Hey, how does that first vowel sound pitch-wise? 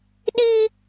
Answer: high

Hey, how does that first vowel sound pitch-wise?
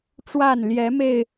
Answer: falling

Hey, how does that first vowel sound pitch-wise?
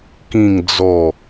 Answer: falling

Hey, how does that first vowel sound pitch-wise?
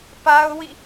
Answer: high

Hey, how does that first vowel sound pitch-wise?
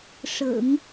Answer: low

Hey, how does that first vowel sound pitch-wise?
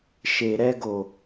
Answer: low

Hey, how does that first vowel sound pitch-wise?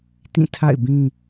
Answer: falling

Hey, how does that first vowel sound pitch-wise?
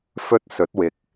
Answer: high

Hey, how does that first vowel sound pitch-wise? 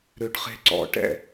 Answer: low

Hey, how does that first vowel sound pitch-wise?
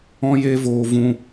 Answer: high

